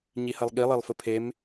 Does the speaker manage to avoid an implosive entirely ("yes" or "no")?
no